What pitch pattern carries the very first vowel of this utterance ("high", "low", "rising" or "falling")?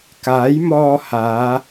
rising